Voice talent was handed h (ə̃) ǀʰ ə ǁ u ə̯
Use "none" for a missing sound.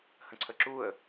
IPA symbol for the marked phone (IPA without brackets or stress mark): ə̃